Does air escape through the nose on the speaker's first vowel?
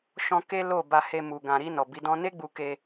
yes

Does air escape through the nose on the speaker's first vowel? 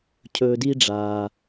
no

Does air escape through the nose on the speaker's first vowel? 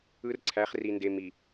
no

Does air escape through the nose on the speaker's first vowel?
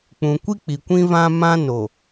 yes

